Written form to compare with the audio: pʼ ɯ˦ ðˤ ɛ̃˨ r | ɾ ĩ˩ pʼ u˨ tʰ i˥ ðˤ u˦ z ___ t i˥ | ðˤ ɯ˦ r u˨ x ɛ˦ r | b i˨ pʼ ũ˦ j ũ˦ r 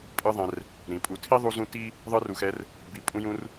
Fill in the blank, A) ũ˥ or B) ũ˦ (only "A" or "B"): B